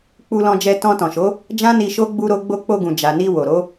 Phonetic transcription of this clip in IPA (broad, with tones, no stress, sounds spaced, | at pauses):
k͡p u˧ l ɔ̃˧ d͡ʒ ɛ˧ t ɔ̃˧ t ɔ̃˨ ʃ o˨˦ | d͡ʒ ã˦ n i˧ ʃ o˦ ɡ͡b u˧ ɾ o˧ ɡ͡b o˧ k͡p o˧ ɡ ũ˨ d͡ʒ a˨ n i˧ w o˨ ɾ o˨˦